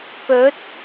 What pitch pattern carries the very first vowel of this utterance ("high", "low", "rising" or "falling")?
rising